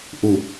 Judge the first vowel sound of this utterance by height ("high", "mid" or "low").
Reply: high